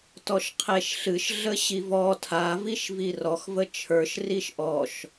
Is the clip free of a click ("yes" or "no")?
yes